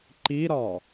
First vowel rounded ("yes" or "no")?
no